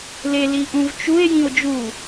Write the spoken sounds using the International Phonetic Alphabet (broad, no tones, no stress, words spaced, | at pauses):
le liʔũvt͡ʃue̯ jĩo̯d͡ʒu